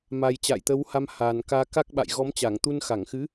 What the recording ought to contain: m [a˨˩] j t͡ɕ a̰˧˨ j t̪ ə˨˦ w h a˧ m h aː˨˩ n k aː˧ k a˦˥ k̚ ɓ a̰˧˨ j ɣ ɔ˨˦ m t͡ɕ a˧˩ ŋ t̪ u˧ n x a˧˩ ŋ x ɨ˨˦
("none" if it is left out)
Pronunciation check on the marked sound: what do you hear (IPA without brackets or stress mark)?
a˨˩